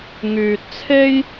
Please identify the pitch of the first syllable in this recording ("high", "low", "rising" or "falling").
low